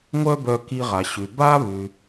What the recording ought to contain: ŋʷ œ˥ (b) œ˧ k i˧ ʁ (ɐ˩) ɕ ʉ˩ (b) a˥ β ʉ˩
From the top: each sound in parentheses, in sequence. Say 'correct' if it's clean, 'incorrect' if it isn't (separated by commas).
correct, incorrect, correct